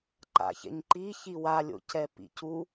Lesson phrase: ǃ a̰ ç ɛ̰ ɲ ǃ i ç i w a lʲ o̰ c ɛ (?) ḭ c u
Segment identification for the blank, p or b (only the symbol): p